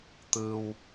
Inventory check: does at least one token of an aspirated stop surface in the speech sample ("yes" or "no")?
no